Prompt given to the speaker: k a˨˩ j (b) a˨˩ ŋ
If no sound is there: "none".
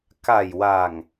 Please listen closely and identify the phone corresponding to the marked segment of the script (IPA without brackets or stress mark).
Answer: w